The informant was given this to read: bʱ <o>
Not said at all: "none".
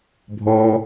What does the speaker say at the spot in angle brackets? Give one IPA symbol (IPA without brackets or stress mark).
ɔ